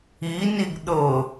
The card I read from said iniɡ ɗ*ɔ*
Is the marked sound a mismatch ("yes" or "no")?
yes